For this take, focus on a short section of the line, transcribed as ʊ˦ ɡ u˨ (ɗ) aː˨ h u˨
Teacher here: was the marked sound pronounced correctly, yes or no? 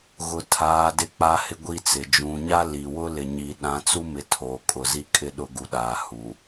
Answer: yes